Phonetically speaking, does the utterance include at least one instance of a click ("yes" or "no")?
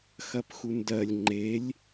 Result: yes